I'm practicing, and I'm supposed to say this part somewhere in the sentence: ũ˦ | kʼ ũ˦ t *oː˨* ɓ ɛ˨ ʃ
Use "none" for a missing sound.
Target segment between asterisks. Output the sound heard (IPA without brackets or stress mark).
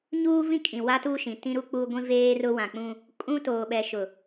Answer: oː˨